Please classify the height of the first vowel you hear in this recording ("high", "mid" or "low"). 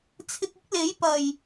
high